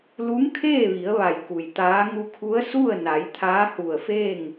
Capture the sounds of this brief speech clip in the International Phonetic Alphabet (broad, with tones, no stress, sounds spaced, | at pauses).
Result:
l u˧˥ ŋ kʰ eː˥˨ ʋ i˩˧ ə̯ ʋ a˧˩ j k u˩ j t̪ aː˧˥ ŋ u˧ kʰ u˧˥ ə̯ s u˥˨ ə̯ n a˩˧ j t̪ʰ aː˧˥ h u˧˩ ə̯ f eː˥˨ ŋ